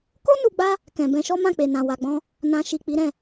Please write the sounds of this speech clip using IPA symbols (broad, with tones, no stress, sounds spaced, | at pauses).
k o˦ n u˧ ɡ͡b a˦ | k ɛ̃˨ b ɛ̃˧ ʃ ɔ˦ m ã˦˨ k͡p e˨ n ã˨ w a˨ ɡ͡b ɔ̃˧ | n ã˨ ʃ i˨ k͡p i˨˦ ɾ ɛ̃˦˨